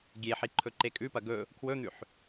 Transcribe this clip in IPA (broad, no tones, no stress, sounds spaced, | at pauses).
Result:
ɡʲ e ħ i ǃʰ ɵ ǃ e kʼ ʉ p ɐ ɡ ɵ | kʰ w ɵ n̪ ʉ ħ